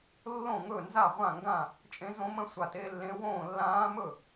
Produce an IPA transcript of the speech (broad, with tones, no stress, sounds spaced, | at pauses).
lː õ˥˩ ŋ ɵ˥˩ n z a˥˩ ʁʷ ã˥˩ ŋ ɡ ã˥˩ | t͡ʃʼ ẽ˧˥ z õ˧˥ m ə̃˧˥ sʷ a˧˩ t e˧˥ lː ẽ˧˥ w õː˥˩ lː ãː˧˥ m ɵ˥˩